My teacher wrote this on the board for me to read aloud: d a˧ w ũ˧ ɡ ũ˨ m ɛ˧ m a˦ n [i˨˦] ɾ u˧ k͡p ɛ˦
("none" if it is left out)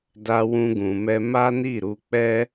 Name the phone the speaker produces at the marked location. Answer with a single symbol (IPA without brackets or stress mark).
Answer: i˦˨